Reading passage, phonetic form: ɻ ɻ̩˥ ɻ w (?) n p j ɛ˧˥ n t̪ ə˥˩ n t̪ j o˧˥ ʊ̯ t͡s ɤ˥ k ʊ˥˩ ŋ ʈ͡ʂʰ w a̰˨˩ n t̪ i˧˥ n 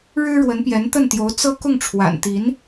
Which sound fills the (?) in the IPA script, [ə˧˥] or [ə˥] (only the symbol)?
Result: ə˧˥